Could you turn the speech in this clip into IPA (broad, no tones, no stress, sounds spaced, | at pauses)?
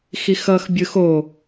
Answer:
x i x ʌ x bʲ ɯ x o